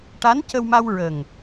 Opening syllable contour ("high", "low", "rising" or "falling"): rising